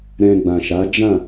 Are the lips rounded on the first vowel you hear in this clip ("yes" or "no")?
no